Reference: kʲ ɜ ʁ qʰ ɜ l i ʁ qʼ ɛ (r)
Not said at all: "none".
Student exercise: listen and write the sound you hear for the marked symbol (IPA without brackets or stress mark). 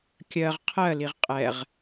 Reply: ʁ